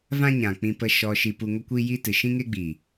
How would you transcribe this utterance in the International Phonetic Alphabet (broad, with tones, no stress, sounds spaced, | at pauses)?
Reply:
v ã˦ ɲ ã˨ k͡p ĩ˧ p ə˧ ʃ ɔ˧ ʃ i˧ p u˧ ŋ ə˦ kʷ i˦ j i˦ t ɨ˨ ʃ ĩ˦ ŋ e˦ ɡ͡b i˨